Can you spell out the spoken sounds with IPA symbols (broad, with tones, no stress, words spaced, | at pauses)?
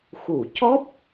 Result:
xu˨˩˨cɔ˦˥p̚